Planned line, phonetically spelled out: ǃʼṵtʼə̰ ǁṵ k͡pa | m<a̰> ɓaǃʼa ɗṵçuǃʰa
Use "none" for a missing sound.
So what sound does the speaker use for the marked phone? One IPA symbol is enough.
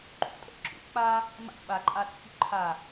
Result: a̰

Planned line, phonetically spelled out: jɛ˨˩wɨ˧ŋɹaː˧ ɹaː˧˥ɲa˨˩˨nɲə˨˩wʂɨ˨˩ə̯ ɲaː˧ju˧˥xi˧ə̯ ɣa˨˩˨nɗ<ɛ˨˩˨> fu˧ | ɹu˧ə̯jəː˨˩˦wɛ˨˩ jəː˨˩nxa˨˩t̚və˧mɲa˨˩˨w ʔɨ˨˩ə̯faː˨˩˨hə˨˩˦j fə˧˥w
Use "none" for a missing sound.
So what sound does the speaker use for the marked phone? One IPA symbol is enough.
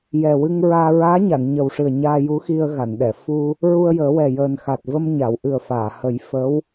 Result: ɛ˨˩˨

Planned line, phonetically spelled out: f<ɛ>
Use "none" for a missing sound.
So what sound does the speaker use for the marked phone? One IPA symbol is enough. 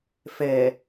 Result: ɛ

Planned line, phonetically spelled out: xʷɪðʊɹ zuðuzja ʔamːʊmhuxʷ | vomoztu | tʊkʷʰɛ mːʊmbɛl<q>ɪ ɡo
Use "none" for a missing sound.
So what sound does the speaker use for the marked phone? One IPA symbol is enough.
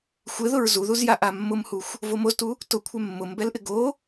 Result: ʔ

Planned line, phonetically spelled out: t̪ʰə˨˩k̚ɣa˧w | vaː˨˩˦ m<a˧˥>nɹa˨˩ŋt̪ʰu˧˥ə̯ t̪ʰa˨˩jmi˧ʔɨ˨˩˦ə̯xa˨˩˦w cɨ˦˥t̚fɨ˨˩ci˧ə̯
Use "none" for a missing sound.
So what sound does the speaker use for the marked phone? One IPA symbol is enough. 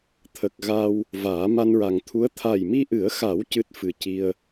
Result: a˧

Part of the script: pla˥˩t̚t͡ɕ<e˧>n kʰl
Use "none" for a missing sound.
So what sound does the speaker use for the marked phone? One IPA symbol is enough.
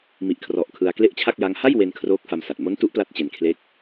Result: e˧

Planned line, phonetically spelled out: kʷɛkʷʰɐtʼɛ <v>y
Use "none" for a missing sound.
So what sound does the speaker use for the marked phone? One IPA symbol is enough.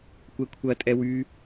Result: w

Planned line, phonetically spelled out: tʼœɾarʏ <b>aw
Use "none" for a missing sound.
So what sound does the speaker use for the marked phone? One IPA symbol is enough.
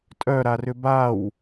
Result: b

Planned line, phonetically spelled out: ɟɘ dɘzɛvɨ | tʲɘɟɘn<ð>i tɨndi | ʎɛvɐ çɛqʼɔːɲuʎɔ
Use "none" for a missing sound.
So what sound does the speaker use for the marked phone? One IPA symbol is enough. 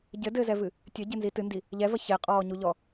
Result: z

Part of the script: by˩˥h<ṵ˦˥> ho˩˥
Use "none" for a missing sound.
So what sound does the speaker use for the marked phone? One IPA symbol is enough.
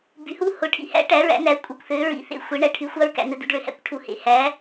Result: u˦˥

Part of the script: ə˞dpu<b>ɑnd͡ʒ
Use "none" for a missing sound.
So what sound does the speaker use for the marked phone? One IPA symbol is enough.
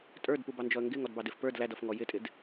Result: b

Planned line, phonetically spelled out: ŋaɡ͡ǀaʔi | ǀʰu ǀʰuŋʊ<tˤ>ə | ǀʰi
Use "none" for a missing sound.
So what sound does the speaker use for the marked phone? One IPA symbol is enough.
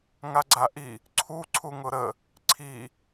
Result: ɾ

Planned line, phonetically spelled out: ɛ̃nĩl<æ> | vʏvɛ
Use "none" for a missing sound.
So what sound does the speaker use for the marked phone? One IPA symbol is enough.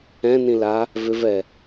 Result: a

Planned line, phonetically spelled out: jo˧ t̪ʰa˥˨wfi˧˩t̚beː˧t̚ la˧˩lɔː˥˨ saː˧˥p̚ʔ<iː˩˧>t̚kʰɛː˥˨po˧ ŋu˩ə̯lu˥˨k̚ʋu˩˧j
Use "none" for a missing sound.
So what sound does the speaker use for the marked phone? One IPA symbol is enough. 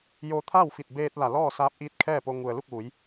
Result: iː˧˥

